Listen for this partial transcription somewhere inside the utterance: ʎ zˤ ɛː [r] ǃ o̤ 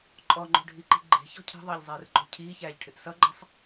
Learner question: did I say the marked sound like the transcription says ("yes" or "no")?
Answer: yes